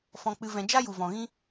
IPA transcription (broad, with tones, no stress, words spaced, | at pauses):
fɔ̃˧k͡pɨ˧vɛ̃˧ d͡ʒa˦ju˨vɔ̃˨ɣĩ˦